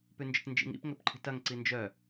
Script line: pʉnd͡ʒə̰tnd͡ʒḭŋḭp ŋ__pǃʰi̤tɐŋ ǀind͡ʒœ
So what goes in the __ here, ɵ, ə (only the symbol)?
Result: ɵ